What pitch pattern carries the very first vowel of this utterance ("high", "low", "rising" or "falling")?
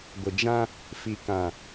low